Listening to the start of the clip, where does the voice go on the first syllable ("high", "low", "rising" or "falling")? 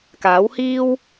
rising